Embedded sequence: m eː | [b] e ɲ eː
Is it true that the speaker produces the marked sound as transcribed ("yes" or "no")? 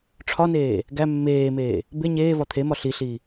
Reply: yes